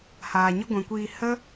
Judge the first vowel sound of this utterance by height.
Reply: low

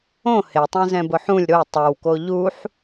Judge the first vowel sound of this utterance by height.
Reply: mid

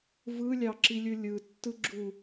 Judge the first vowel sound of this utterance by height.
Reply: high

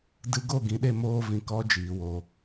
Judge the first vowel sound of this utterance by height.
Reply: high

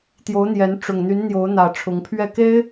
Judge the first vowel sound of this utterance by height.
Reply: mid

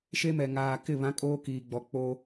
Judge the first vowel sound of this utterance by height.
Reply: mid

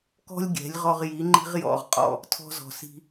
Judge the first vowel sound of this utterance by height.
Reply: mid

